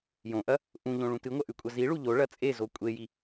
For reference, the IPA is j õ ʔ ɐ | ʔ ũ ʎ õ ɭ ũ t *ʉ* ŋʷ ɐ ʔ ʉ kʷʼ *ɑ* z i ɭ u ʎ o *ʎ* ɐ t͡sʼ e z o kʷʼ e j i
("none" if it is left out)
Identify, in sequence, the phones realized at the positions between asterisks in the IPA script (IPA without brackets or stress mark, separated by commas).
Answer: ɨ, ɐ, ɭ